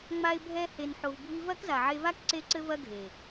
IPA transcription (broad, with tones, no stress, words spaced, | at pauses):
ŋ͡ma˧ɪ̯bʱɛ˧he˨n ħo˨vbʱi˧ vɐ˦kza˨ʕe˧va˦k ǀe˦ǀɘ˦vɐ˦ɡʱe˨